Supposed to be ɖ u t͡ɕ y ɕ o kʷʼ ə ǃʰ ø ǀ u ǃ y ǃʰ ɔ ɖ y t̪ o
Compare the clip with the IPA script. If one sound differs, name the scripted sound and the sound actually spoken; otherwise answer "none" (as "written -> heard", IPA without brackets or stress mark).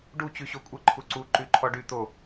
ø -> u